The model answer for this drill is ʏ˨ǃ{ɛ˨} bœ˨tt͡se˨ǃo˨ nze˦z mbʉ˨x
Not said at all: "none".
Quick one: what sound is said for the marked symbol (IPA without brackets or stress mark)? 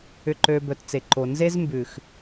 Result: ø˨